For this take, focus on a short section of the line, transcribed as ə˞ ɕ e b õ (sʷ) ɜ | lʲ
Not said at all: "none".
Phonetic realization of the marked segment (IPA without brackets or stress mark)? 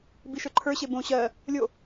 ɕ